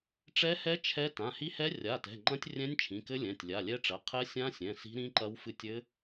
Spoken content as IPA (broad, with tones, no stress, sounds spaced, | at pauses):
ʈ͡ʂ ɛ˦˥ h ɛ˦˥ t͡ʃʰ ɛ˦˥ t ã˩˧˩ h i˦˥ h ɛ˦˥ rʲ a˩˧˩ t ɛ̤˩˧˩ ŋ͡ǃ ɐ̃˦˥ tʲ rʲ ɛ̃˦˥ nʲ t͡ʃʰ ĩ˩˧˩ k ɘ˦˥ lʲ ɛ̃˩˧˩ tʲ lʲ a˩˧˩ lʲ ɛ˦˥ ʈ͡ʂ ɐ˩˧˩ qʰ ɛ˦˥ sʲ ã˦˥ sʲ ɛ̃˩˧˩ s i̤˦˥ ɾ ĩ˦˥ ǃ ɐ˦˥ w f ɨ˦˥ tʲ ɘ˦˥